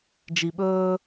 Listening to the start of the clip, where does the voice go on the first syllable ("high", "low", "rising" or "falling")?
low